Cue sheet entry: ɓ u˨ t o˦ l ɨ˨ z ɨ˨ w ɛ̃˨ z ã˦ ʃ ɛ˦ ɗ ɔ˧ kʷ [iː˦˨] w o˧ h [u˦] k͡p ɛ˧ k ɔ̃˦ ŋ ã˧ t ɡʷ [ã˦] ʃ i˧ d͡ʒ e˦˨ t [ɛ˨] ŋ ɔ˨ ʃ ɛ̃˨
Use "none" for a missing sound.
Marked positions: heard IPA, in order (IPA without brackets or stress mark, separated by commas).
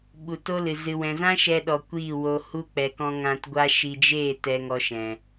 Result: iː˦˨, u˦, a˦, ɛ˨